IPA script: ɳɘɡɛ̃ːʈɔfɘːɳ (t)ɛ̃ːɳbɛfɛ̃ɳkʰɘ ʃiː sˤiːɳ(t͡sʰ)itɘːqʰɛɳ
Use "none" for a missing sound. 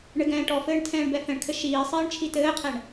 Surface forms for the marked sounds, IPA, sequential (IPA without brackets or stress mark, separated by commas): tʰ, t͡ʃʰ